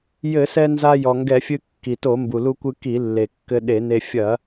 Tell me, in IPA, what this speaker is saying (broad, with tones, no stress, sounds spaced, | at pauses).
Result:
j ɘ˧˩˧ s ɛ˧ n z a˧ j ɔ˩ ŋ ɡ ɛ˧˩˧ fʲ ɨ˧ kː i˩ t o˧˩˧ m b u˩ l u˧ kʷ ɨ˧ k i˧˩˧ lː e˩ kː ɘ˧ ɗ e˧˩˧ n e˧ fʲ ɐ˧˩˧